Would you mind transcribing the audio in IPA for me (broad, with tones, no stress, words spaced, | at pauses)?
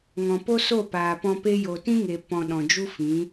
ŋɔ̃˨ po˦so˦˨paː˨pɔ̃˧ pe˦ jo˨tĩ˦ŋe˨ pɔ̃˧ ɗɔ̃˨d͡ʒu˦fĩ˨˦